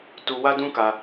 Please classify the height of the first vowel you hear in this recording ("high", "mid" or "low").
high